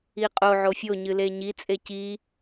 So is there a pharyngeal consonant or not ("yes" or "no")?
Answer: yes